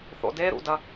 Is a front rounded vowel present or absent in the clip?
absent